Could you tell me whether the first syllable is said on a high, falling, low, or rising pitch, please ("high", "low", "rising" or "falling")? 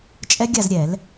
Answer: high